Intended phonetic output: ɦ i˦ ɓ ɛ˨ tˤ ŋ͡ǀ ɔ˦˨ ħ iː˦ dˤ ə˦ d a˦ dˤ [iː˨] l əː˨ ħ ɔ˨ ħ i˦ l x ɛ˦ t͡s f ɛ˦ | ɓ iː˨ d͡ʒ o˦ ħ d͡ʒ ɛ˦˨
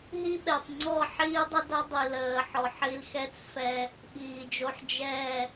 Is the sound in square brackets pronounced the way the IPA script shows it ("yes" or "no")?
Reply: no